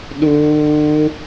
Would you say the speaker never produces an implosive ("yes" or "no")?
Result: no